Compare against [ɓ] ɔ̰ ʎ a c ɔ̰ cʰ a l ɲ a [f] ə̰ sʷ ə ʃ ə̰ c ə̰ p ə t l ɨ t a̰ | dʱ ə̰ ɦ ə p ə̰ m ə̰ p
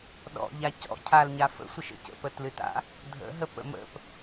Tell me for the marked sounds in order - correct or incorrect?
incorrect, correct

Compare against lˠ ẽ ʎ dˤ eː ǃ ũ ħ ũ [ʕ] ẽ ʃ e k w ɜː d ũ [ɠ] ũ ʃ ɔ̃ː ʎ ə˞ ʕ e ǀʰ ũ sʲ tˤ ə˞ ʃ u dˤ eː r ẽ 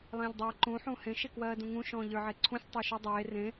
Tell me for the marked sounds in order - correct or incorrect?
incorrect, incorrect

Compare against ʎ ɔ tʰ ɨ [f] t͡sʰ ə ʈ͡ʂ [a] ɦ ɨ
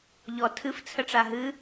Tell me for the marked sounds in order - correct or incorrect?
correct, correct

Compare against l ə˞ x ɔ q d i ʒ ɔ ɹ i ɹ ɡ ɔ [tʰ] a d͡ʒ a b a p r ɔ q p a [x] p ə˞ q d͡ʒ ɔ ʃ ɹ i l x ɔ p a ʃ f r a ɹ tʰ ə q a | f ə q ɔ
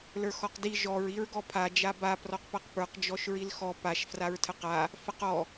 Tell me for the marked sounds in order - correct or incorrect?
incorrect, incorrect

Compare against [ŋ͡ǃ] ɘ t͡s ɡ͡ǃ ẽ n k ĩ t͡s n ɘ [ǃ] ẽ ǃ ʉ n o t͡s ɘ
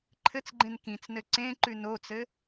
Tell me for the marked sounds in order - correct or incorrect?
incorrect, incorrect

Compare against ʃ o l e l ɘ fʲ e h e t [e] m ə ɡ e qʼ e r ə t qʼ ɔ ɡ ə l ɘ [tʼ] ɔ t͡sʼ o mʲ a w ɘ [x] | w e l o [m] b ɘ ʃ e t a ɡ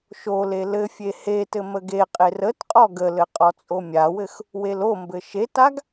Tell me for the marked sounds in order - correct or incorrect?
incorrect, incorrect, correct, correct

